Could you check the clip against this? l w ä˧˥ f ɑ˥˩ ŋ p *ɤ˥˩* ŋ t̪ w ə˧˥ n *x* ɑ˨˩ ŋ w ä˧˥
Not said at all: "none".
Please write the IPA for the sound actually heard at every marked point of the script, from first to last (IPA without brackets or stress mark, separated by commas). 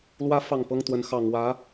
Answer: ɤ˥, x